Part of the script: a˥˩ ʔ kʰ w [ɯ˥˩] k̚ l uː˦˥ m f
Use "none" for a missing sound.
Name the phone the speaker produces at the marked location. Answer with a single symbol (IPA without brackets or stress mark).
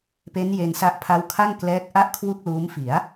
u˥˩